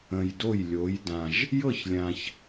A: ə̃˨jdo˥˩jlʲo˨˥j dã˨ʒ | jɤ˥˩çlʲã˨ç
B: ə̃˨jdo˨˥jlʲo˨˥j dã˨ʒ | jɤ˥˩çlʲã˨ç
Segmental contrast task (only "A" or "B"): A